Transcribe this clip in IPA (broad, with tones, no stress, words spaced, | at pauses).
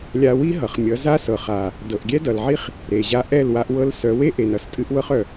lʲa˧wi˦ɦʌ˨χ mʲʌ˨˦za˦sɤ˨ χa˨ | dɤ˨ʔɡʲɛ˦dʌ˨lʕi˦χ | ɾe˨ʑa˧ʔɛ˦˨l wa˧ʔ wɤ˧l sœ˨˦we˦ʔe˨n ʌ˧stʼɨ˧ʔ wɤ˧χœ˨